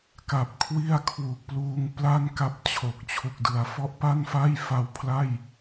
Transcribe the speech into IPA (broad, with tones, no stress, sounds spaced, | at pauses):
k a˨˩ p̚ kʰ w i˥˩ a̯ kʰ w u˨˩ k̚ p l uː˧ ŋ p l a˥˩ n k a˦˥ p̚ t͡ɕʰ o˨˩ k̚ t͡ɕʰ u˨˩ k̚ d ɯ˩˦ a̯ f ɔ˦˥ ʔ p a˥˩ n f a˥˩ j f a˧ w pʰ l a˥˩ j